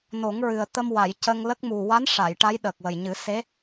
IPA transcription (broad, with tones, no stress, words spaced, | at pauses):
no˨˩˦ŋɹɨ˨˩ə̯ t̪ə˧mwa˨˩˨j cə˧ŋlə˦˥k̚ mu˨˩wa˧˥n ʂa˨˩˨jʈa˧˥j ɗə˨˩k̚wə˨˩jɲɨ˨˩˦ se˧˥